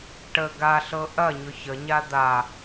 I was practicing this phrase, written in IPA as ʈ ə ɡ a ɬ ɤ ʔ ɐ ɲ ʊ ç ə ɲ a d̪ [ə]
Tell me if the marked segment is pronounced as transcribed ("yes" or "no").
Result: no